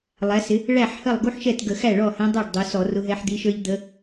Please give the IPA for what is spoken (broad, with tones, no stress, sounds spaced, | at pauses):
lˠ æ˩˧ s ɪ˩˧ | ɭ æ˥˩ ħ h ə˥˩ lˠ ɡ u˥ ħ ʃ ɛ˥˩ t ɡ ə˧˩˧ x æ˥˩ ɭ ɔ˥˩ h ɛ̃˧˥ dˤ ə˞˥˩ ɖ dˤ u˩˧ s ɔ˧˩˧ r ʊ˧˥ ɦ ɛ˧˥ ħ d̪ i˧˥ ʃ ə˞˥ ʎ d̪ ə˧˥